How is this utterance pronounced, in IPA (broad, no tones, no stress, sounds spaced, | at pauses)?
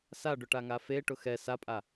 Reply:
s a ɖ ʊ ʈ a ŋ a f e ʈ ʊ x ɛ s a pʼ a